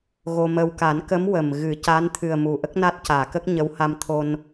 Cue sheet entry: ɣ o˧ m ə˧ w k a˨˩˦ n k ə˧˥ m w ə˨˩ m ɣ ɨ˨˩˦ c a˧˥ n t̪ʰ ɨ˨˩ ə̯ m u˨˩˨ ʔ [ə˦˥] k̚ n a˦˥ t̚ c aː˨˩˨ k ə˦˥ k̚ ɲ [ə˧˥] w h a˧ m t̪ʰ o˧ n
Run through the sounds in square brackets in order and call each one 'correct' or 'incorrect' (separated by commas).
correct, correct